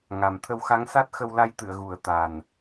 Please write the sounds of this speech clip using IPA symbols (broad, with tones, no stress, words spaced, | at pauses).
ŋa˨˩mt̪ʰə˧w xa˧˥ŋsa˦˥t̚xə˧w la˧jt̪ɨ˨˩˨ə̯ ɣu˨˩ə̯t̪a˨˩n